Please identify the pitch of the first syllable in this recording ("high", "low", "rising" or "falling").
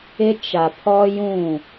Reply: high